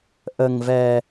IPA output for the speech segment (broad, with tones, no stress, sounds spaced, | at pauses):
ʔ ə˧ ŋ v ɛ˧